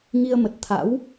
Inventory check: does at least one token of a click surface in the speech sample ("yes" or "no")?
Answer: no